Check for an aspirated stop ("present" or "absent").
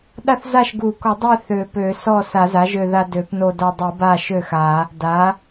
absent